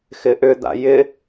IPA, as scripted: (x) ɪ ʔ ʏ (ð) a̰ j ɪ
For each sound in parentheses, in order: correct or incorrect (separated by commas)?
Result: correct, incorrect